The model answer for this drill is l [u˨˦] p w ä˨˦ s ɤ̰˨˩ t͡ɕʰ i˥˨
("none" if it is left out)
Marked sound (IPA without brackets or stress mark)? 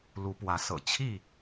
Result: u˨˦